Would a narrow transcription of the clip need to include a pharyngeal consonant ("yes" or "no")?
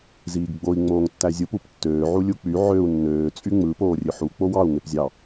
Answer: yes